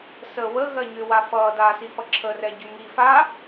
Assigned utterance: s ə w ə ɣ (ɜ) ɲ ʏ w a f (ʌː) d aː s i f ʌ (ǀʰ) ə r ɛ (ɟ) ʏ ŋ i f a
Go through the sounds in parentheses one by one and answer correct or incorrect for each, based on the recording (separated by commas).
correct, correct, incorrect, correct